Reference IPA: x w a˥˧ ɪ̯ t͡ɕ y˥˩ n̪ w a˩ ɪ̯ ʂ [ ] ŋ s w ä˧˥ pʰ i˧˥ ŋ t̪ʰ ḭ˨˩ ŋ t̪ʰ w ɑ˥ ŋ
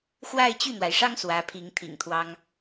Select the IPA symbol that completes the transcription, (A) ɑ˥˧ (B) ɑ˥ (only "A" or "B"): B